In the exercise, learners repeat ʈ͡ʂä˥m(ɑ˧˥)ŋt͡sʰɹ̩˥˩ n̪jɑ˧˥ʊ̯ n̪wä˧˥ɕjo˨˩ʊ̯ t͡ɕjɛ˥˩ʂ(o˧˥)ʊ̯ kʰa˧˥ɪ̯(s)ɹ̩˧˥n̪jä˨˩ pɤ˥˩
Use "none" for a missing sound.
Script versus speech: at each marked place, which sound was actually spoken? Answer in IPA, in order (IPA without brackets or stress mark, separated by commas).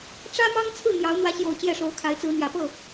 ɑ˥, o˧˥, t͡s